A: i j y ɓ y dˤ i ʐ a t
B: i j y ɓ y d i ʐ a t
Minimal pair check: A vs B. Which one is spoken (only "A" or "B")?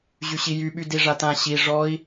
B